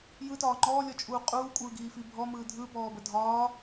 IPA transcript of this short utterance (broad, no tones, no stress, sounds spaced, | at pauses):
j ɯ t ɒː ŋ͡ǃ ɔː lʲ ɔ t͡ʃʼ uː qʼ uː kʷʼ ɯː ɡ iː f i bʱ ɔ m ɯː dʱ ɯ b ɔː b ə dʱ ɒː